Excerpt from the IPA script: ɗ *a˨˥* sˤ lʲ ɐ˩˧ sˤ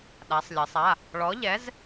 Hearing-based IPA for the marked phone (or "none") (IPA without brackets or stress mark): a˩˧